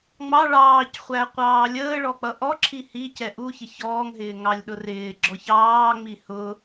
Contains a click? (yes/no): yes